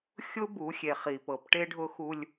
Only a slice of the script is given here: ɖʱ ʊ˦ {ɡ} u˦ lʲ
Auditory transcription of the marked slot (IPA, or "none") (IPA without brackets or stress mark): x